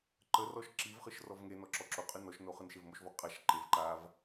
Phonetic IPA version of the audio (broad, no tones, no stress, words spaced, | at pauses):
ǃərɔʃ ǁivχɯʃ rɔvŋenɔ ǁɔǁoqʼɯ nɔʃno χɯnʃevmoʃvɔ qʼaʃ ǃev ǃav